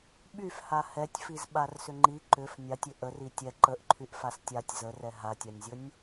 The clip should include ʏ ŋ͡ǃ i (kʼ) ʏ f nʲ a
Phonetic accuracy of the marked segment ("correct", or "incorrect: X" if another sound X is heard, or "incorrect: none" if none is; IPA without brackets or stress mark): incorrect: ǃ